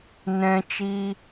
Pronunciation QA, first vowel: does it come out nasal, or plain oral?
nasal